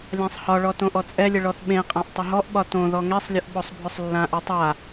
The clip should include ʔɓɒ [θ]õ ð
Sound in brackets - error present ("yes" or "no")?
yes